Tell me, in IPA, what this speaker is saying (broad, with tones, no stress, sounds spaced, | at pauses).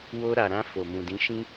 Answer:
w o˧ ɾ a˨ ɾ ã˧ f o˨ m ũ˨ d ĩ˨˦ ʃ ĩ˦